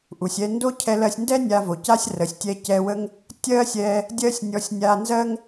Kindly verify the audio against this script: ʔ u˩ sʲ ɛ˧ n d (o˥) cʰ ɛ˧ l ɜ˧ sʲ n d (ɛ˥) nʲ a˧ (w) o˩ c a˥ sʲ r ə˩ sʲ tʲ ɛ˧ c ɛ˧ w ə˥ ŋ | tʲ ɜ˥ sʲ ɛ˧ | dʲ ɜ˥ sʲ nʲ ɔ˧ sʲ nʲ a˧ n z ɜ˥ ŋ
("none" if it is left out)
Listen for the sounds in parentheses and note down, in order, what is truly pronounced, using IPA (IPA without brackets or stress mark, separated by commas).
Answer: o˥, ɛ˥, v